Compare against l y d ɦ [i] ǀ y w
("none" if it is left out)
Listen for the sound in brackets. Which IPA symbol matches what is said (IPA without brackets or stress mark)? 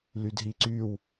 i